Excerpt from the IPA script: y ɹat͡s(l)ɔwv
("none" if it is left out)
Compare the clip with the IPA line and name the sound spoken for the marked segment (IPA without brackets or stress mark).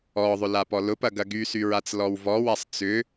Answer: l